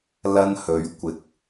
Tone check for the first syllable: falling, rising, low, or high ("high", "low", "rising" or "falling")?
high